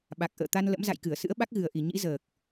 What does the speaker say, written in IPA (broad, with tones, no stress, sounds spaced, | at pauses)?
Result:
ɓ a˨˩ k̚ ʔ ə̰ː˧˨ t̪ a˧ n l ə̰˧˥ m z a̰˧˨ j k ɨ˧˩ ə̯ s ɨ̰˧˥ ə̯ ɓ a˦˥ k̚ ɣ ɨ˨˩ ə̯ ʔ i˨˩ ɲ ḭ˧˥ z əː˨˩ k̚